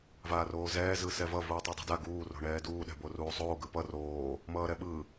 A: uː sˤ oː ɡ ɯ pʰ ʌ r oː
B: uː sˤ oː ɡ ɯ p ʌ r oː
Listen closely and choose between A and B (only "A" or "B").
B